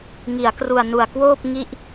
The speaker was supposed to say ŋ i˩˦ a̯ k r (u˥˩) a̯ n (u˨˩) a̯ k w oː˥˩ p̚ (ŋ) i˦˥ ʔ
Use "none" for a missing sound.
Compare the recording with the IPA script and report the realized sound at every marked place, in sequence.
u˨˩, u˨˩, ŋ

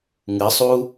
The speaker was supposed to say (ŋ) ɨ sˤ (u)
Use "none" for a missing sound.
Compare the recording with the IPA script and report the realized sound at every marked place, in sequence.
ŋ, uː

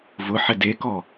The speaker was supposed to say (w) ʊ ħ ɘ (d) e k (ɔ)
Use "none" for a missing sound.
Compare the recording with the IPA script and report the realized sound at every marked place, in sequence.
v, d, ɔ

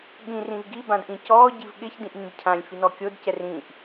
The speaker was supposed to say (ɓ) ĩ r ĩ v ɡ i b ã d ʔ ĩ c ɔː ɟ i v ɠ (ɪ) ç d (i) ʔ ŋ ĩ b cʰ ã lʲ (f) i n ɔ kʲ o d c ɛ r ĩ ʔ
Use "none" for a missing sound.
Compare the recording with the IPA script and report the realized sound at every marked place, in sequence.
ɠ, ɪ, ĩ, f

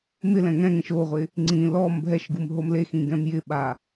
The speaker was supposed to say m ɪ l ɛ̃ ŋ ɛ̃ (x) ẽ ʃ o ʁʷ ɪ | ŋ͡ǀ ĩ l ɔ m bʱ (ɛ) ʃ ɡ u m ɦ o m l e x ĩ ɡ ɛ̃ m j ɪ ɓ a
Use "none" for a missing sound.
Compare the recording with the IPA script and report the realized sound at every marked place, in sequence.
ŋ, ɛ

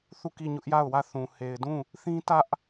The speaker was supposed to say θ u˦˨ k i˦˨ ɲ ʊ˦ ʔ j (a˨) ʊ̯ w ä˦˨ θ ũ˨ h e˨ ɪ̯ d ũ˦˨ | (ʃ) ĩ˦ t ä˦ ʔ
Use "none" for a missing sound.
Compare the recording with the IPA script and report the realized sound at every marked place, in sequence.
a˦˨, θ

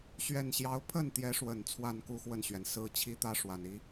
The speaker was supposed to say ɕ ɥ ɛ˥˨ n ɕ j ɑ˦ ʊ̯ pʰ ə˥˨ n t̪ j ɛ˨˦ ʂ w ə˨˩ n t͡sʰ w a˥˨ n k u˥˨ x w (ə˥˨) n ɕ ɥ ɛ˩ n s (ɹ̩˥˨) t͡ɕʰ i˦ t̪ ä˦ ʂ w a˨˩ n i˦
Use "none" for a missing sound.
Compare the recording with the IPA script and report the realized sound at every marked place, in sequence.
ə˥˨, ɹ̩˦

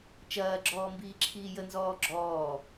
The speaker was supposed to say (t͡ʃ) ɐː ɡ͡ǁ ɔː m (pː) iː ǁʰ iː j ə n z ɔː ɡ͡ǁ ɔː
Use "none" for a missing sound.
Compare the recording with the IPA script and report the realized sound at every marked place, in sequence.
t͡ʃ, b

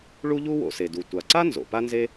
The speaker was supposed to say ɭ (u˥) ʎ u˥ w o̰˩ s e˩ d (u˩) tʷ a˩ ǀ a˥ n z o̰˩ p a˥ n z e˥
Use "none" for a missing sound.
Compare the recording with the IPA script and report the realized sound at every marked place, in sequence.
u˥, u˩

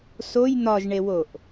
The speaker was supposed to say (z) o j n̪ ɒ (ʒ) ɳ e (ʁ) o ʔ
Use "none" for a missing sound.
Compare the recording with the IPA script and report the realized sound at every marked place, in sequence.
s, ʒ, w

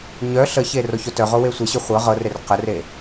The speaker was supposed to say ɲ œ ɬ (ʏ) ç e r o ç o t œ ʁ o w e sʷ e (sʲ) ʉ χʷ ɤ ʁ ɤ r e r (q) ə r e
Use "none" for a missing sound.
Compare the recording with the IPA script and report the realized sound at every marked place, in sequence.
ə, ɕ, q

